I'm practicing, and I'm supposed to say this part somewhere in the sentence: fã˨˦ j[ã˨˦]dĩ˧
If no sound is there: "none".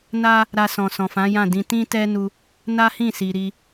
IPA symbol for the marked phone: ã˦˨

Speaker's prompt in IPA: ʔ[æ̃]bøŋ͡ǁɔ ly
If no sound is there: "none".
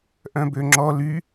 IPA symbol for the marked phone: œ̃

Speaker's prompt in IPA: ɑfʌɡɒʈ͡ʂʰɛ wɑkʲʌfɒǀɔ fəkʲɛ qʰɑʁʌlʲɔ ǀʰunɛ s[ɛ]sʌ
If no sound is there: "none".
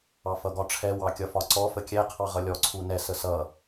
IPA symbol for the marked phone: ə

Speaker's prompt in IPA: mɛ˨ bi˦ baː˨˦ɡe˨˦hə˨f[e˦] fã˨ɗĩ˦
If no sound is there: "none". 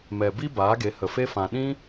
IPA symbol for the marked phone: e˦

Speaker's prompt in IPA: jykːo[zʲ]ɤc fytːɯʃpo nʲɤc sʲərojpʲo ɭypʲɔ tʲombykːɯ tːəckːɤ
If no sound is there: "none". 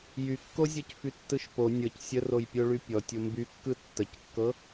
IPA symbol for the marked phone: zʲ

